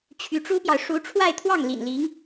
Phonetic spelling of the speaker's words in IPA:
t͡ɕʰ y˧˥ ʈ͡ʂ u˥ p j ɑ˨ ʊ̯ ʂ u˧˥ ʈ͡ʂʰ w a˥˧ ɪ̯ t̪ʰ w ɑ˥˩ ŋ l ḭ˨˩ n l i˧˥ ŋ

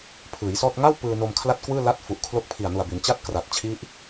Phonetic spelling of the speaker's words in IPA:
pʰ ɯː˩˦ j s ɔː˥˩ t̚ ŋ a˥˩ w p ɯː˧ n o˧ m kʰ l a˥˩ t̚ k w ɯː˥˩ l a˦˥ t̚ f u˨˩ ʔ kʰ l o˦˥ k̚ pʰ i˨˩ a̯ n u˨˩ a̯ b i˩˦ n t͡ɕ a˥˩ t̚ k r a˨˩ t̚ t͡ɕʰ i˦˥ ʔ

